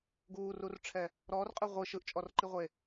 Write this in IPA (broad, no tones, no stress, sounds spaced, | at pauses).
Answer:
ɡ uː r u r ʈ͡ʂʰ ɛ | ɾ ɔː r qʼ ɯ ʁʷ ɯ ʃ ɯ ʔ t͡ʃʼ ɔ r ǃ i ʁʷ e